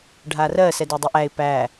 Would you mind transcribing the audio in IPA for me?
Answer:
ɖʱ a r ɜ s ɛ d ɛ dˤ u ʔ æ ɪ̯ p æ

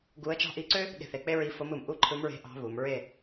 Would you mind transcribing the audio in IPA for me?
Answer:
ɡ u˧˥ ə̯ t͡ʃ ɑ̤˥ ʔ i˧˥ ǀ ø˥ | ɠ e̤˥˨ θ e˥˨ k͡p e˥ ɹ i˧˥ f o˧˥ m ɯ˩˧ m ʔ u˥˨ ǃʰ ɯ˧˥ m ɹ e̤˧˥ ʔ ɑ̤˧˥ β u˩˧ m ɹ e˥˨

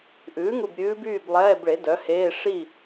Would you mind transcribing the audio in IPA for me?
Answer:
ʔ ʉː˩˥ ŋ u˧˩ b ɾʲ ʉː˧˥ b yː˥˨ b lˠ ɛː˧˥˧ b ɭ e˩˥ d œ˩˥ h eː˧˥˧ ʂ i˥˨

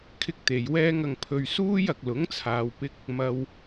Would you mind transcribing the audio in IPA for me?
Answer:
kʰ ɪ˥ k̚ t̪ e˨ j w ɛː˥ ŋ ɐ˧ ŋ pʰ ɵ˧ ɥ s uː˥ j ɐ˨ k̚ l ʊ˨˥ ŋ t͡sʰ aː˨ w p ɪ˧ k̚ | m ɐ˧ w

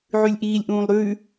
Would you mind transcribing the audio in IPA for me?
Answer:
ʕ ʉ lʲ ʔ iː lʲ ʔ ũː lˠ ɾ ʉː

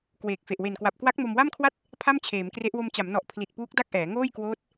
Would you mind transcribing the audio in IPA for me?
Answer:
k w eː˨˩ k̚ f e˨˩ ʔ w e˨˩ n k w a˨˩ p̚ k w a˦˥ k̚ m o˧ m w a˥˩ m kʰ w a˥˩ t̚ | pʰ a˥˩ m t͡ɕʰ eː˩˦ m k r e˦˥ ʔ w o˧ m t͡ɕ a˩˦ m n ɔ˨˩ ʔ pʰ l i˨˩ t̚ p uː˦˥ k̚ d a˥˩ k̚ ʔ ɛː˩˦ ŋ oː˥˩ j k w oː˦˥ t̚

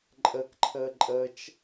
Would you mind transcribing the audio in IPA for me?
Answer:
ǃʼ ə k ǃʰ əː ǃʼ əː t͡ʃ

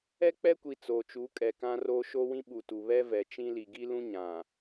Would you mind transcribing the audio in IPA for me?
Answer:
ɛ˦ k͡p ɛ˦ kʷ i˨ t͡s oː˨ t͡ʃ u˨˦ kʼ ɛ˨ k ã˦ r o˦ ʃ o˦ w ĩ˦ ɓ u˨ t u˨ β ɛ˦ v ɛ˨ t͡ʃ ĩ˦ l i˨ ɡ i˦ l ũ˦ ɲ ã˨

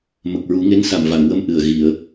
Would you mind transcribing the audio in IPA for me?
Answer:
m ə˨˩ k̚ ɹ u˨˩˦ ŋ e˧˥ n s a˨˩ m v a˨˩˨ ŋ w ə˧ m ʔ ɨ˨˩ ə̯ ɣ i˨˩˨ ə̯

